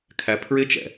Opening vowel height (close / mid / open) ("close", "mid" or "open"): open